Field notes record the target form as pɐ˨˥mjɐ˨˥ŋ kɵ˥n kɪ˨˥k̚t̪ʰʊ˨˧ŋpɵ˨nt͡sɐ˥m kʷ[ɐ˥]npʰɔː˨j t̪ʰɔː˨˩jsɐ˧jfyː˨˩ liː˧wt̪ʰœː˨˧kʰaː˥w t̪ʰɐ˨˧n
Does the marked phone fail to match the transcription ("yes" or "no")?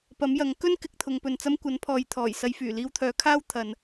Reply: yes